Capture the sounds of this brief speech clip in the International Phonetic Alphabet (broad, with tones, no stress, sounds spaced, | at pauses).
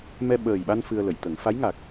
m ɛ˧ ɓ əː˨˩ j ɓ a˧ n f ɨ˧ ə̯ l ə˨˩˨ j t̪ ə˨˩˦ ŋ f a˧˥ j ŋ a˨˩ k̚